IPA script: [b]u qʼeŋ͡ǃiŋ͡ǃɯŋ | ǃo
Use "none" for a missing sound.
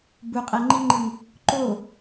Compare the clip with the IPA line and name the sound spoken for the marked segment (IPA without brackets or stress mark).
b